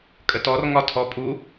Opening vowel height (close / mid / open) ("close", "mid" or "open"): mid